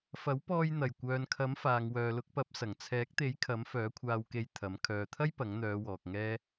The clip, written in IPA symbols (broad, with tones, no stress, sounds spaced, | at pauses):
f ɐ˨˥ w p ɔː˧ j n̪ ɐ˨˩ j kʷ œː˨ n kʰ ɐ˨˥ m f aː˨ ŋ w œː˨ l ʊ˨˥ k̚ p ɐ˨˥ p̚ s ɐ˨˩ ŋ t͡sʰ ɛː˨˥ k̚ t̪ e˨˥ j kʰ ɐ˨˥ m f œː˨˥ kʷʰ aː˧ w k e˧ j t̪ʰ ɐ˨˥ m kʰ œː˨ t̪ʰ ɐ˥ j p ɐ˨˥ ŋ n̪ œː˨˧ w ɔː˨ k̚ ŋ ɛː˥